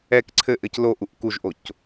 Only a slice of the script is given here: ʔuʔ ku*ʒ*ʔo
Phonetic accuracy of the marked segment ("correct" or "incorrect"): correct